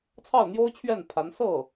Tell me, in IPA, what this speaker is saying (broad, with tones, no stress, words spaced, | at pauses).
t͡sʰɑ˥˩ʊ̯n̪jo˥ʊ̯t͡ɕʰɥɛ˥˩n pʰa˧˥n sɤ˥˩